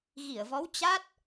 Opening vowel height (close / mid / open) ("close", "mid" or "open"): close